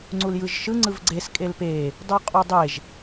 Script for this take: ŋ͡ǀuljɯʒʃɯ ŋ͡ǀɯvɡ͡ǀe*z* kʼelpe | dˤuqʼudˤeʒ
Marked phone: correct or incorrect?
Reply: incorrect